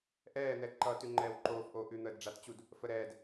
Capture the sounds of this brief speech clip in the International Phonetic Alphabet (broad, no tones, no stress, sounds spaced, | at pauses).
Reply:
ʔ ɛː n̪ ɛ ǃ ʌ t ʉ ŋ͡ǃ ɛː w ǃ oː f ʔ oː ʔ ʉ n̪ əː d ɖ͡ʐ a t t͡ɕ u d | f ə ɾ ɛː d